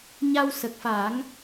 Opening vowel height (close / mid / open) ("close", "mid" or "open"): open